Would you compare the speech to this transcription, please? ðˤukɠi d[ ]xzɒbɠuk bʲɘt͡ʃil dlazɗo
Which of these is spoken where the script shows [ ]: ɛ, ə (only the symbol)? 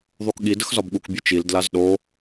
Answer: ə